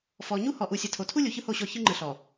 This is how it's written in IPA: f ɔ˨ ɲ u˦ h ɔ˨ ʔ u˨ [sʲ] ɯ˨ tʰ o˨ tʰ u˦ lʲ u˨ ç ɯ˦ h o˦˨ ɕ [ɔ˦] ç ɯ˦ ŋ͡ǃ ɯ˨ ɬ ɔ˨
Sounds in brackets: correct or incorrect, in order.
correct, incorrect: ɔ˦˨

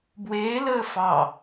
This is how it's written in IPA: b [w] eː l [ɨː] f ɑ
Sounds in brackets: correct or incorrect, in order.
correct, incorrect: əː

